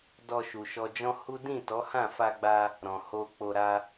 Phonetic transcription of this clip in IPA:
d ɔ˨ ʃ u˨ ʃ ɔ˧ d͡ʒ ɔ̃˦ h u˦ d ĩ˦˨ t ɔ˨˦ h ã˦˨ f a˧ ɡ͡b a˧ | ɾ ɔ̃˨ h o˧ k͡p o˧ ɾ a˦

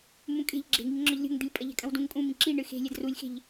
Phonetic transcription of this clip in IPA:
m ũ kʼ e̤ ʎ ɡ͡ǁ e̤ ŋ i ŋ ŋ͡ǁ ɔ ʎ lʲ o̤ ŋ d̪ i lʲ pʼ ɐ ʎ ɛ̤ kʼ ɐ̃ w d ũ ŋ kʼ ũ m ĩ ǁ i ɳ ɨ x e̤ lʲ ɛ d r u lʲ x e̤ ʎ

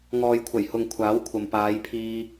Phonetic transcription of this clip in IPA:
ŋ ɔː˨ j kʷʰ ɐ˨˩ j h ʊ˨ ŋ kʷʰ aː˨˥ w kʷʰ ɐ˨ m p aː˨˧ j pʰ iː˧

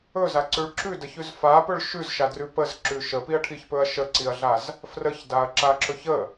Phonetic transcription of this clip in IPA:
ɵ z a ǀ ʉ ɭ ǁ ʉ d ə ç ʉ z f a p ɵ ɭ ʃ ʉ z ʃ a d r ʉ p ə z ǁ ʉ ʃ ə p i ɐ̯ ʈʰ i ç p ɵ ɐ̯ ʃ ə ǀ i ɐ̯ ɮ a z | f r ə ç d a ɐ̯ ǁ a ǁ ɵ ç ə

